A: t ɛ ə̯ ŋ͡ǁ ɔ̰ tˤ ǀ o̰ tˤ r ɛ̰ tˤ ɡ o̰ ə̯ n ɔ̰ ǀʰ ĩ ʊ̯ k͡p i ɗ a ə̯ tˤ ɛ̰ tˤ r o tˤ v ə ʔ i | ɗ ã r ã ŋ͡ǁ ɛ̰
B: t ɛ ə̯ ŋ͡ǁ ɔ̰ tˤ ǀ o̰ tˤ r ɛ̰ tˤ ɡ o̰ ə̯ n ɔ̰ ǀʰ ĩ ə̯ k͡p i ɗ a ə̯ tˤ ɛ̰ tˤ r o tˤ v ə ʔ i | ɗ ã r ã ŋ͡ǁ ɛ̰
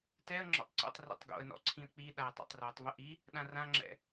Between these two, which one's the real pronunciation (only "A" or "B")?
B